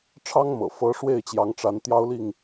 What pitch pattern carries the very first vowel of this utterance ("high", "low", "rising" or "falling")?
high